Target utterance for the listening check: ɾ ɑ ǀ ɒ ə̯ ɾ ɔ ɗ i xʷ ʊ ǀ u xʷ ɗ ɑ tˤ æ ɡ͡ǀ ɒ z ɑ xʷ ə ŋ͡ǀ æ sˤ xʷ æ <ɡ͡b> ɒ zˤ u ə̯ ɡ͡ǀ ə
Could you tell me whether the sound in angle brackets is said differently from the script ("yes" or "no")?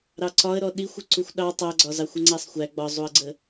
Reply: no